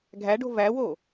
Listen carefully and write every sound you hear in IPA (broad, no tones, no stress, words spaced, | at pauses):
ɡʱæɖo̤ væwo